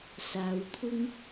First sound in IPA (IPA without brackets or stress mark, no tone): s